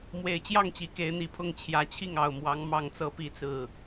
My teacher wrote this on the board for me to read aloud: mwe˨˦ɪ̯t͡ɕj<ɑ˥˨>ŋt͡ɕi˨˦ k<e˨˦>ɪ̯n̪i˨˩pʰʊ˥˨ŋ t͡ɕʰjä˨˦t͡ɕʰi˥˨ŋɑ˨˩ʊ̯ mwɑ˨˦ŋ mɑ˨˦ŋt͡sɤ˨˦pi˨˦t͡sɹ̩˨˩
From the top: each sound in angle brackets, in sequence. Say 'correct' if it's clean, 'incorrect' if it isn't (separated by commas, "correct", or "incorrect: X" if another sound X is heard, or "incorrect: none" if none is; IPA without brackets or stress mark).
correct, correct